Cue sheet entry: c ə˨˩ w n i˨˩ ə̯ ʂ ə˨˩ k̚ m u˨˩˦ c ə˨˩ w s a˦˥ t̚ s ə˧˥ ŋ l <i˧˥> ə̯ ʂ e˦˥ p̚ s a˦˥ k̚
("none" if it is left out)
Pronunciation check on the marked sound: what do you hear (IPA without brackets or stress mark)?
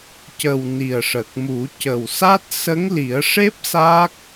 i˨˩˦